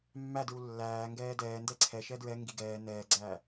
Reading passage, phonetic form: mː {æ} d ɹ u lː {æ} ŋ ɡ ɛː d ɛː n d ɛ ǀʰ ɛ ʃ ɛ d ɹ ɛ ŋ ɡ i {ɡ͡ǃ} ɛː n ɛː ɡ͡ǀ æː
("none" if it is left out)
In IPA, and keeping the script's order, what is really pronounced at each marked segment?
æ, æː, ɡ

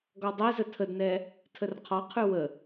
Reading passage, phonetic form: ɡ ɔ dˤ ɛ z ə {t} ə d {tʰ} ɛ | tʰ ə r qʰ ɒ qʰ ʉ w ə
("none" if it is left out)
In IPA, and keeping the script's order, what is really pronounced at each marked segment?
tʰ, n

